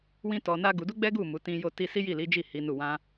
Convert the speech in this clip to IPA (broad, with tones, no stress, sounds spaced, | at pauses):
w ĩ˦ t ɔ˧ n a˦ ɡ u˧ d u˦ ɡ͡b ɛ˦ ɡ u˦˨ m u˨˦ t ĩ˦ j o˦ t i˦ s i˦ j i˦˨ l i˨˦ d͡ʒ i˦˨ h i˨˦ n u˦˨ w ã˧